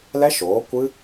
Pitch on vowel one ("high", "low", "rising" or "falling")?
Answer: high